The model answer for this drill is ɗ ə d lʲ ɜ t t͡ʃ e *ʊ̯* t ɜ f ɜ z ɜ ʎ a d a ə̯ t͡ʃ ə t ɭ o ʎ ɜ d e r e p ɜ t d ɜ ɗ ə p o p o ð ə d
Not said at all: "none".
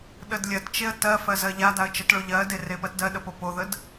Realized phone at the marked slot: ə̯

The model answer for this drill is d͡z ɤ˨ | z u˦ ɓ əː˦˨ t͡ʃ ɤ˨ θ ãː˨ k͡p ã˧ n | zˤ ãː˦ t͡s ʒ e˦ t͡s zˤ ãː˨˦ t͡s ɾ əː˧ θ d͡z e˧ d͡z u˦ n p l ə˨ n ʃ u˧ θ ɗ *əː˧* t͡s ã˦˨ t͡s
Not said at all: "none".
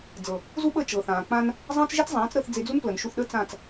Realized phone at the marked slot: əː˦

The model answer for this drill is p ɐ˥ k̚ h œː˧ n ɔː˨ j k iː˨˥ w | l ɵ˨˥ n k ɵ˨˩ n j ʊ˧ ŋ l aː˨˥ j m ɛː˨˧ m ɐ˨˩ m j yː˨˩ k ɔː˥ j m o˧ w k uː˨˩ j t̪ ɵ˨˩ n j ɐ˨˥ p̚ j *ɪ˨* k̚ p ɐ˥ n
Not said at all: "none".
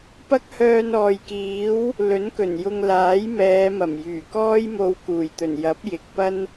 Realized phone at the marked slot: ɪ˨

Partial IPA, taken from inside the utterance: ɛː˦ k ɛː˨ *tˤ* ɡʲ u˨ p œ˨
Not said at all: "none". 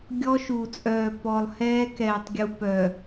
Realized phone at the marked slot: tˤ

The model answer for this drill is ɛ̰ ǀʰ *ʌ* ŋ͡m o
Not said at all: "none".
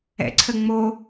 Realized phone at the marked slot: ə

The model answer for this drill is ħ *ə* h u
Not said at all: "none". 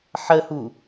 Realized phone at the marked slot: ə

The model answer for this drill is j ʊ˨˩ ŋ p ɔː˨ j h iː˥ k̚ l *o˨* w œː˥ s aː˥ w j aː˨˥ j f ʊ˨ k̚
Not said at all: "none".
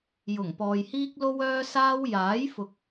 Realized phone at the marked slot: o˥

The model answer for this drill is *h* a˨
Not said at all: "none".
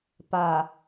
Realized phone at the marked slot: p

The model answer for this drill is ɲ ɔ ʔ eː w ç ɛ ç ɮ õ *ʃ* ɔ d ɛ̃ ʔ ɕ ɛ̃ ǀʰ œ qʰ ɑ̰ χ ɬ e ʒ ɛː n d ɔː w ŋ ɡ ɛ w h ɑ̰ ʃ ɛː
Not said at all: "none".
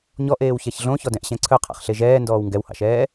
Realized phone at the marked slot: ç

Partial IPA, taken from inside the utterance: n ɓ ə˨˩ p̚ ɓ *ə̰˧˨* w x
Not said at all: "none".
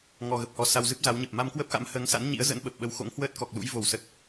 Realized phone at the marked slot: ə˨˦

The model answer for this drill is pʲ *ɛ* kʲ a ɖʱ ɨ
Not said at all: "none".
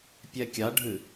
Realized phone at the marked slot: ɛ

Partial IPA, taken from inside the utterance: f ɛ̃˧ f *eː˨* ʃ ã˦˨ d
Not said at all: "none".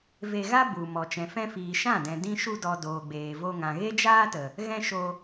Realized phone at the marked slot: iː˨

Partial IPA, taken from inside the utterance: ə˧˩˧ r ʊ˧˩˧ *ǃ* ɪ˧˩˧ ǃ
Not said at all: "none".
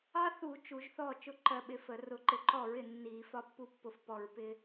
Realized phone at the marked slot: ǃ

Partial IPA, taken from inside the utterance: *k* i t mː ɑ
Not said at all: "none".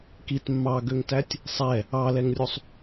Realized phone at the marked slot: k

